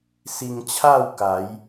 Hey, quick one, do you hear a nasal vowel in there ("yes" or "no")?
no